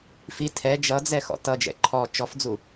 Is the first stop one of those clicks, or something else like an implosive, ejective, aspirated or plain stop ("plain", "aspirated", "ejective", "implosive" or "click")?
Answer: aspirated